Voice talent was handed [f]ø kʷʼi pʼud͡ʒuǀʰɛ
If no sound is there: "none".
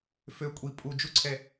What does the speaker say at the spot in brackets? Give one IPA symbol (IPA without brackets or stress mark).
f